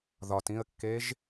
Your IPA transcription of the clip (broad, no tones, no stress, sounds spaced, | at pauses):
ð ɒ t ĩ ə̯ kː e ʒ